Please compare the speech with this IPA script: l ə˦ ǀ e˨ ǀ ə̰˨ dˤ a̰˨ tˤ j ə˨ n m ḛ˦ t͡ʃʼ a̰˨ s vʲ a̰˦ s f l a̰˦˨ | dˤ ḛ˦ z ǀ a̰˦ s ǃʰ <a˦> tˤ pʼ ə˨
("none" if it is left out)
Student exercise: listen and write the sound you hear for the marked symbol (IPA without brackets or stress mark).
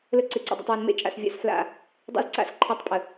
a˦